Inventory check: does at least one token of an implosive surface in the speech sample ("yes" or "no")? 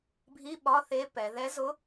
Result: yes